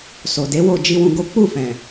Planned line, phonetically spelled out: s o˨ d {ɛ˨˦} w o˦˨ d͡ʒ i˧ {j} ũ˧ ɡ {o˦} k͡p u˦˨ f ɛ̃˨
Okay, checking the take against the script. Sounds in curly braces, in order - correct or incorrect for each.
incorrect: e˨˦, incorrect: w, correct

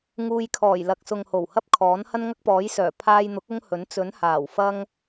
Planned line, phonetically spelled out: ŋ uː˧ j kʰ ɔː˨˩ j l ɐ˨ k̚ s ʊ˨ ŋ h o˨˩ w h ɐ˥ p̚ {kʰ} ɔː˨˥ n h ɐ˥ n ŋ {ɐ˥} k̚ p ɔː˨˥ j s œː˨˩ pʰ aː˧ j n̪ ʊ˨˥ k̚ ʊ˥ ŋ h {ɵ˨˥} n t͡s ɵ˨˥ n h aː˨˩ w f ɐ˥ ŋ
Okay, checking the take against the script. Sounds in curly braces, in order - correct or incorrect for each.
correct, correct, correct

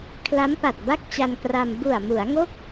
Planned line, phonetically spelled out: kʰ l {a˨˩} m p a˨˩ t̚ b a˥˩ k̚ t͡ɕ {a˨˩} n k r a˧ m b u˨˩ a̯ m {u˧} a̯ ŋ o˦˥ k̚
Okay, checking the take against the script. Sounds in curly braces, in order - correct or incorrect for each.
incorrect: a˦˥, incorrect: a˧, incorrect: u˩˦

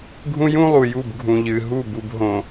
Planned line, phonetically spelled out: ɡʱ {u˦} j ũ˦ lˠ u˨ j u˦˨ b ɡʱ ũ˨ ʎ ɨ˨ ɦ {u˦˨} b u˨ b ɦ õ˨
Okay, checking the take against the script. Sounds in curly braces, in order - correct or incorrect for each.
incorrect: ũ˦, correct

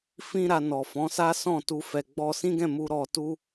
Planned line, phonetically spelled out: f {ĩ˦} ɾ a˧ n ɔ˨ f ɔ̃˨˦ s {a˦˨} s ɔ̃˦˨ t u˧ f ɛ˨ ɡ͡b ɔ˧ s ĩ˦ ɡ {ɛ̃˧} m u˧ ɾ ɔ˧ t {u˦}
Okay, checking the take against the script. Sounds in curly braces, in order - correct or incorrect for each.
correct, incorrect: a˦, incorrect: ɛ̃˦˨, correct

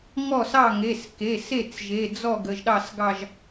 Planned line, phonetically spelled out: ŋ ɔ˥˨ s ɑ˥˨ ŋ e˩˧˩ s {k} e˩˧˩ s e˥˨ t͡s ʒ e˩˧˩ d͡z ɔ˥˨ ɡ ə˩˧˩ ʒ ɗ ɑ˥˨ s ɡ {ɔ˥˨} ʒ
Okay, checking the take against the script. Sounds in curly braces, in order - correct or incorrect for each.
correct, incorrect: ɑ˥˨

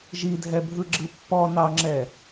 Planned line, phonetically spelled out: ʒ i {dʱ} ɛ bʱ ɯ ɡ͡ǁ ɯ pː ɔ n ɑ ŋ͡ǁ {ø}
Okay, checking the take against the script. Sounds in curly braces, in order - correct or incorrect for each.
correct, incorrect: ɛ

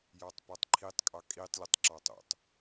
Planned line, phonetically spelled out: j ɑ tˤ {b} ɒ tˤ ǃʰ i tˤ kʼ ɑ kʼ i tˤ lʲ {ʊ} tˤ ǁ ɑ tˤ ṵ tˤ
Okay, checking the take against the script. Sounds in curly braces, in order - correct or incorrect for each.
incorrect: p, correct

